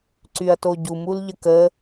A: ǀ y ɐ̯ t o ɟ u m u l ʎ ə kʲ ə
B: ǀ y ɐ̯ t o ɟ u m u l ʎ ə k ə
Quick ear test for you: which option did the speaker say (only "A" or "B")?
B